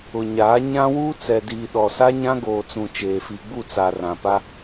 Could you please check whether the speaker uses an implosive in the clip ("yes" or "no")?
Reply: yes